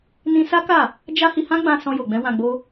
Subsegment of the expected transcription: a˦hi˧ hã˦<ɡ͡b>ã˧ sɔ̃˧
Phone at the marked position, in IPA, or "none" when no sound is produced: ɡ͡b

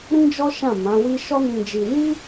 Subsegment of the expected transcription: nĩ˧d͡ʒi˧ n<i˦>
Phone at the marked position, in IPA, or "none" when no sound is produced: i˦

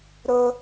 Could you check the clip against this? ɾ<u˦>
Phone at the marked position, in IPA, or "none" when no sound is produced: ʊ˦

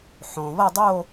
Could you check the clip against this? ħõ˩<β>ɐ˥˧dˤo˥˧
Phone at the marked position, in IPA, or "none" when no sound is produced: β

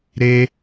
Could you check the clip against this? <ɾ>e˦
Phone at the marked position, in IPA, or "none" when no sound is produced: ɾ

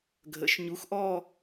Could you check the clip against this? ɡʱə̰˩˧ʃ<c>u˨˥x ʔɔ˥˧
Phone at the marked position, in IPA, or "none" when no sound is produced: ɲ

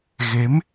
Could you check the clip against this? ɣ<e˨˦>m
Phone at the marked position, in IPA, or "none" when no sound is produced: e˨˦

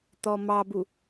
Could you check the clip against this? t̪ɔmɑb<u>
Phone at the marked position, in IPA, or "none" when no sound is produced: u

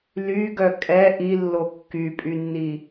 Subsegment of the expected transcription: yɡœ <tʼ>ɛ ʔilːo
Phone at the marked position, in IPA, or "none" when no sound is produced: kʼ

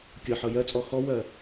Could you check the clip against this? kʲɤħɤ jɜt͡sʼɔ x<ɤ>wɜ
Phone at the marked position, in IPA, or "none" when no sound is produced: ɔ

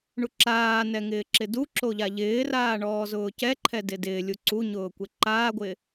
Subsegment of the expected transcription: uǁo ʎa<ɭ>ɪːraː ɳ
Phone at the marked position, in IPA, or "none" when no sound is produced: ʎ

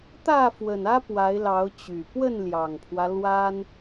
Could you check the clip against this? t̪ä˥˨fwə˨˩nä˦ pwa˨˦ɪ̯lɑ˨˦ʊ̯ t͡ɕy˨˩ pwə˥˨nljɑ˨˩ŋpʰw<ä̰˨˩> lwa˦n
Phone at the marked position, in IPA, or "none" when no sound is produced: ä˦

